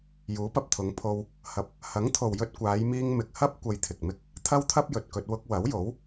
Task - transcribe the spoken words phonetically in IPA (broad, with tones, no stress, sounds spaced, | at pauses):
j uː˨˥ p ɐ˨ p̚ t̪ʰ ʊ˨˧ ŋ pʰ o˧ w | h ɐ˨ p̚ | h ɐ˨˥ ŋ t̪ʰ o˨ w j ɵ˧ t̚ kʷ aː˨˧ j m iː˧ ŋ m ɪ˨ k̚ h ɐ˥ p̚ kʷ ɐ˧ j t̪ʰ ɪ˨ k̚ m ɪ˥ k̚ | t̪ʰ ɐ˥ w t̪ʰ ɐ˥ p̚ j ɵ˨ t̚ k ɵ˧ t̚ w ʊ˧ k̚ w ɐ˨˥ w j o˨˥ w